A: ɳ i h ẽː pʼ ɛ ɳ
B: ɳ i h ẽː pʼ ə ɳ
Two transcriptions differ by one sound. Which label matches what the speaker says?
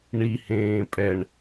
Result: A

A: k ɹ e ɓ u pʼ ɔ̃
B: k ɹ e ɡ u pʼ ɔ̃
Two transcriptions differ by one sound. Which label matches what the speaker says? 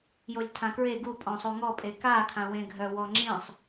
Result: B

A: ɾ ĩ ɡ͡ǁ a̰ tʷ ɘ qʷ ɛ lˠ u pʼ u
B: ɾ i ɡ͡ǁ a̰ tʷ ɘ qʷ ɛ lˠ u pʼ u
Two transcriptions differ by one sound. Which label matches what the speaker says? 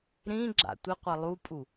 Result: A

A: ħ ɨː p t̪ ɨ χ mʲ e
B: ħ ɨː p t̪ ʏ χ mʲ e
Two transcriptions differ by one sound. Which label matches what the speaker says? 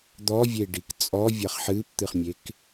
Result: A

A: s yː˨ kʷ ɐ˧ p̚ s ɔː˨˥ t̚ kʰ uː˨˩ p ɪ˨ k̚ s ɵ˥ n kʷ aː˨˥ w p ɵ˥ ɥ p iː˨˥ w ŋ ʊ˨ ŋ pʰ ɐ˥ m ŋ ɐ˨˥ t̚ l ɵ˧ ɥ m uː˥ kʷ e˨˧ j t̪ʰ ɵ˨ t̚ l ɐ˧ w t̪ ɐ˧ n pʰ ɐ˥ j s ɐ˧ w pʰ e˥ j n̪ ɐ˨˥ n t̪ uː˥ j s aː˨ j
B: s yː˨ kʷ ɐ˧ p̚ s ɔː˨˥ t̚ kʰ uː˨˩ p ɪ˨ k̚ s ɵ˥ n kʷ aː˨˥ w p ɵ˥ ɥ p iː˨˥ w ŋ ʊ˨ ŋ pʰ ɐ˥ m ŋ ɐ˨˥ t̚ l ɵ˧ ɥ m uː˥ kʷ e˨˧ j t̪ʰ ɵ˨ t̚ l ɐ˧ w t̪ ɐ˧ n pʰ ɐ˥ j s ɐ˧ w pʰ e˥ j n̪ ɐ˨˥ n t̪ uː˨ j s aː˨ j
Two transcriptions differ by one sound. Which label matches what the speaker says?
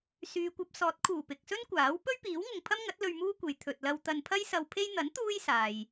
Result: A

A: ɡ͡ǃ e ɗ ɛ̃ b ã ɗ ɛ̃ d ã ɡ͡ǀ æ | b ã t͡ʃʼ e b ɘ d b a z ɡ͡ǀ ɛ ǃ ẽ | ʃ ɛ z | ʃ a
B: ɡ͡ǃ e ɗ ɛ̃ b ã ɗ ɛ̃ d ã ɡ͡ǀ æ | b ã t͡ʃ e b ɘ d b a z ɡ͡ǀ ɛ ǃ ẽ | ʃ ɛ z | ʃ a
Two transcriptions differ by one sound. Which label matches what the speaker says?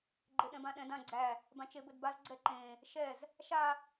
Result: B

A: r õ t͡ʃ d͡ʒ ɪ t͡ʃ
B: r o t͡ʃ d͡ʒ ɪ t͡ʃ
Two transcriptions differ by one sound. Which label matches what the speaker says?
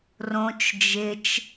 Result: A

